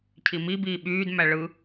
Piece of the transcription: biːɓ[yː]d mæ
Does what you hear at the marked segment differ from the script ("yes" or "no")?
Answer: no